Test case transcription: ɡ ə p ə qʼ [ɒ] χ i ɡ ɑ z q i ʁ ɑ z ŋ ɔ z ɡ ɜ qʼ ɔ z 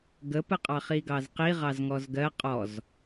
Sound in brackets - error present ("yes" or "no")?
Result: yes